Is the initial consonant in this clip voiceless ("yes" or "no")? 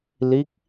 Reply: no